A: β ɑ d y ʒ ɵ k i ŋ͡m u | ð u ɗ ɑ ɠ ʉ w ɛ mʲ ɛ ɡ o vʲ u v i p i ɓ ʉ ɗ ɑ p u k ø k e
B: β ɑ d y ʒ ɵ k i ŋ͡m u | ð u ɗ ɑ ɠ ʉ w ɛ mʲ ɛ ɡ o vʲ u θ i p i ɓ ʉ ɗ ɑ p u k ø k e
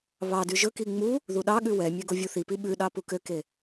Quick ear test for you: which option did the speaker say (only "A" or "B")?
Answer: B